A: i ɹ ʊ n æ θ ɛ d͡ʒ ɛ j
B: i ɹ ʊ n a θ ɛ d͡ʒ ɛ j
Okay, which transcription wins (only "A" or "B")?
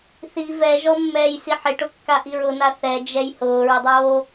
B